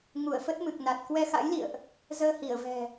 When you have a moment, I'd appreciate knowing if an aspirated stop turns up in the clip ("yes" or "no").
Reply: no